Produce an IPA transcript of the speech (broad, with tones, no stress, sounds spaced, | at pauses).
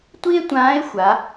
tʷ i˥ e̯ tʷ ãː˧˥ e̯ xʷ a˩˧